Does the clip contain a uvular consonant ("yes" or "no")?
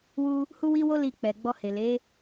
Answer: no